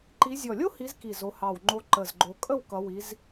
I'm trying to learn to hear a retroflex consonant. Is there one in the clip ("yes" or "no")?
no